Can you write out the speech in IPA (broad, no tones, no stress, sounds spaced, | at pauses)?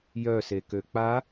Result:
j œ s e k ø k͡p a